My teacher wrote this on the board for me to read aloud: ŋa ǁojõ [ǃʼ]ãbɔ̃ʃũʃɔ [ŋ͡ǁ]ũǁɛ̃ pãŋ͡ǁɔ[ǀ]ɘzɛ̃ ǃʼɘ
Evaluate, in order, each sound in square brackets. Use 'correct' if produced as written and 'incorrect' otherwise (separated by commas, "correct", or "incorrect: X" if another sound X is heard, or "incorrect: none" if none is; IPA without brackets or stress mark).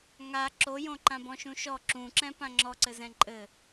incorrect: ǃ, incorrect: ǁ, correct